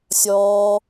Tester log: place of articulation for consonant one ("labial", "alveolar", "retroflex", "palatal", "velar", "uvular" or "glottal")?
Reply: alveolar